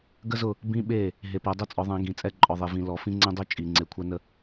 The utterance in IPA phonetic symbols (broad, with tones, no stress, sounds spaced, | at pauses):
ɡ ə˦ z ʊ˦˨ | b ĩ˦ ɓ e˦˨ | ɦ e˨ p ɜ˨ dˤ ə˦˨ t͡sʼ ɔ˨˦ ðˤ ɛ̃˨˦ ɡ ĩ˨ t͡sʼ ɛ˦˨ ǃʼ ɔ˨ ðˤ e˨ v ĩ˨ l ɔ˨ f ĩ˦ ŋ͡ǀ ɛ̃˦ dˤ ø˦ t͡ʃʼ i˨ ŋ͡ǀ e˨ kʷʰ ɜ˦ n ə˦